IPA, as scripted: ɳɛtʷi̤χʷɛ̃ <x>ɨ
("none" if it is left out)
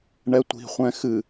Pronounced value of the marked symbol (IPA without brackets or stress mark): x